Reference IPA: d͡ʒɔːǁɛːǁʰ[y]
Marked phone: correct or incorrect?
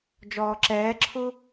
incorrect